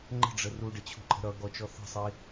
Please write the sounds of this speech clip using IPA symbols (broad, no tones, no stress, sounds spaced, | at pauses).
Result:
ŋ͡ǃ ə̤ ɖ͡ʐ ə r u ɖ ə t͡ɕʰ ṳ ǃʼ ə̤ ɾ ʌ ɡ ɔ t͡ʃ ɔ θ ə̤ sˤ i